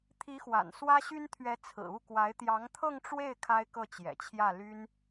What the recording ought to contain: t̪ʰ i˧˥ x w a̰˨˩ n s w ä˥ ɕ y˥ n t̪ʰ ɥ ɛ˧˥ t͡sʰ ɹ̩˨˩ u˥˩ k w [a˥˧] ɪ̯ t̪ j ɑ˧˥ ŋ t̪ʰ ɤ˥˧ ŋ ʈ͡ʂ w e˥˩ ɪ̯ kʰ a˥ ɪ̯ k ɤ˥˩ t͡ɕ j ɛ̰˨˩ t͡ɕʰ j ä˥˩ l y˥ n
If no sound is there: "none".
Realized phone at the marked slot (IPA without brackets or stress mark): a˧˥